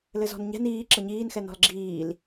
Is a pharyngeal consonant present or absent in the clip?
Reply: absent